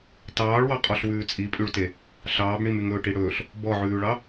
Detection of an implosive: absent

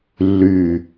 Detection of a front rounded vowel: present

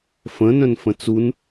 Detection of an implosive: absent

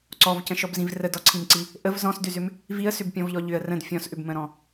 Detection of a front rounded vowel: present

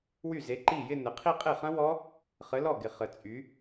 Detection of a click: present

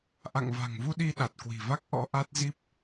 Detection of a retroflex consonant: absent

